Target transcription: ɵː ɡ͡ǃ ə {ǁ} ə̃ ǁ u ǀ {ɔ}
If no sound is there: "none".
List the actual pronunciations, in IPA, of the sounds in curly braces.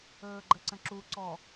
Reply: ǀ, ɔ

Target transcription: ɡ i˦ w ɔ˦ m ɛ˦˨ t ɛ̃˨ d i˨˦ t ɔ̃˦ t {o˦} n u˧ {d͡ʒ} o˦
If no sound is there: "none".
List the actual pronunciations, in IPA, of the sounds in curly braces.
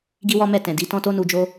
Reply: o˦, d͡ʒ

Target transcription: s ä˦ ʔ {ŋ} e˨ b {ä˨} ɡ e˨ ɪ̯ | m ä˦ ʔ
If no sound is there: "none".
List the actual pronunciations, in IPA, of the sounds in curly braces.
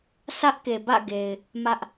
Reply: k, ä̰˦˨

